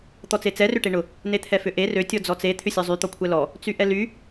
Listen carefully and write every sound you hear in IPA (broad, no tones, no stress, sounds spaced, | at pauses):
t̪ ɔ t͡s e t͡s ɛ r ʏ ʈ e ɳ ʊ | n e t̪ʰ ɛ f ʏ ʔ e r ø tʲ ɔ d͡z ɔ t͡s e t̪ʰ ʏ sʲ ɔ zˤ y t̪ ɔ kʷʰ ɛ l ɔ | t͡s y ʔ ɛ l y